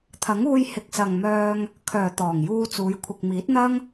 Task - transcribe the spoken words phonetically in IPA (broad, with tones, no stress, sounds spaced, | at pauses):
t̪ʰ ɐ˨˥ ŋ uː˧ j h ɪ˨ k̚ s ɐ˨ ŋ m œː˧ ŋ | kʰ œː˨˩ t̪ ɔː˨˩ ŋ j uː˧ t͡s uː˨˧ j kʷʰ ɪ˨ k̚ m iː˨˥ t̚ n̪ ɐ˥ ŋ